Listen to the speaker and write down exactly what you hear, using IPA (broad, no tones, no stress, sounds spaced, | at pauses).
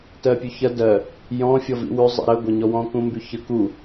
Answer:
t ɜ pʲ ʉ ç ɐ d ɜ | j ɔ̃ fʲ ɔ v ḭ w ʉ zˤ ḭ ɾ ə ɡʷ ɐ ɲ ɔ w ɔ̃ k ũ m b y ç ə k u